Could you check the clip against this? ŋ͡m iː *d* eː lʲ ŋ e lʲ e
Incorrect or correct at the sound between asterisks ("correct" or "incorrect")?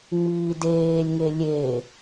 correct